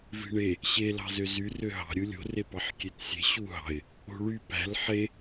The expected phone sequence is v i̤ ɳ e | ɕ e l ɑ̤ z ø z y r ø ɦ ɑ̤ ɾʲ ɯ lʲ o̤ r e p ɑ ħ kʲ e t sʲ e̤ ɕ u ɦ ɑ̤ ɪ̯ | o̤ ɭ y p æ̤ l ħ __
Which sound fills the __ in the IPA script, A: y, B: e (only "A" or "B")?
B